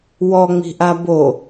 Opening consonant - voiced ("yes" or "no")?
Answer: yes